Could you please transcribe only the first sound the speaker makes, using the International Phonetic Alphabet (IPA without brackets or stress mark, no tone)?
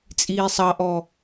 t͡sʼ